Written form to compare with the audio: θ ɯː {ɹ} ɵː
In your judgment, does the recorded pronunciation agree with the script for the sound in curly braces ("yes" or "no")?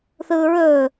yes